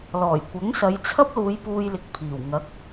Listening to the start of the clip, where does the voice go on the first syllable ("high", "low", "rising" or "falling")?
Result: low